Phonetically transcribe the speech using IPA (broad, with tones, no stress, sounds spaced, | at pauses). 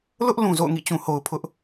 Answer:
l ʊ˦ ʔ l ũ˨ z o̰˦˨ ʊ̯ ŋ ḭ˦˨ t͡ɕ ũ˨ h o˨ ʊ̯ pʰ ʊ˦ ʔ